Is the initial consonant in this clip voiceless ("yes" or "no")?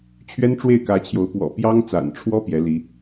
yes